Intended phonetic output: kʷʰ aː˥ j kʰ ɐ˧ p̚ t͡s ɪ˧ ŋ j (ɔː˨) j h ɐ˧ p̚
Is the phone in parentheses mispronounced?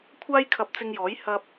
yes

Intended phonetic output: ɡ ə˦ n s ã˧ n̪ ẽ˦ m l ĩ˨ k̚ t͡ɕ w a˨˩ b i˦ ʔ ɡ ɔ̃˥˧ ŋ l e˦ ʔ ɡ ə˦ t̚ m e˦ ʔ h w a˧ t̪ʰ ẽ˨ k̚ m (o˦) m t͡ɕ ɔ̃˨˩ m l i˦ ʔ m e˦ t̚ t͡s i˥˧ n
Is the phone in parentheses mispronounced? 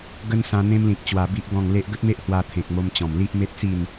yes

